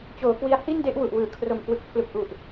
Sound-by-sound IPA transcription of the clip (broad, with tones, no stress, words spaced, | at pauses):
t͡ɕoː˩˦kwi˦˥a̯ hi˥˩nde˥˩ʔ wu˨˩ʔwɯː˩˦ kʰro˨˩m kwɯ˨˩k̚pʰlu˨˩k̚ʔu˨˩ʔ